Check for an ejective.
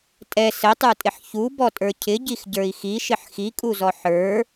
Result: present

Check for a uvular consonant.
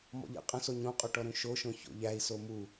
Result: present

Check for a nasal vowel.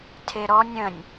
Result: present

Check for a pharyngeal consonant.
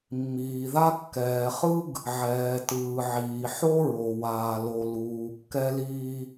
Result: present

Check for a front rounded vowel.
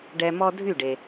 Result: present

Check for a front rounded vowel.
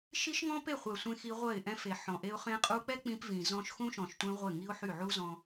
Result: present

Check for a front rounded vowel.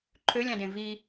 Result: present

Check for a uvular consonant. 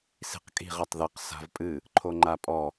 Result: present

